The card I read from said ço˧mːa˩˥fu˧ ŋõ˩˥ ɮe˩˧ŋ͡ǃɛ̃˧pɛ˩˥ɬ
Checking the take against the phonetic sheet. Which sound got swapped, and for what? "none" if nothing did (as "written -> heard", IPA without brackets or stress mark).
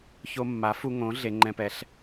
none